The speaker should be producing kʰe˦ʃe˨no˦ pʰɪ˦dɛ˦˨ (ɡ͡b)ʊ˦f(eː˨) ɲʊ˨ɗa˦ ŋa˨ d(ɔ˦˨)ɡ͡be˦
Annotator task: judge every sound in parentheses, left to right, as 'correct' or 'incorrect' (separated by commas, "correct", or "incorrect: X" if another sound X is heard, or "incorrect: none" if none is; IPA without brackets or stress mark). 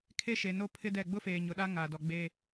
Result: correct, correct, incorrect: ɔ˨